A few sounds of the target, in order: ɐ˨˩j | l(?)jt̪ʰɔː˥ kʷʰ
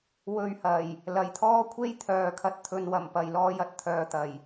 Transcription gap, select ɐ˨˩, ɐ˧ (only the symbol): ɐ˨˩